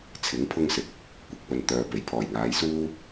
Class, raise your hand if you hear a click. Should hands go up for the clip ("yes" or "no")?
no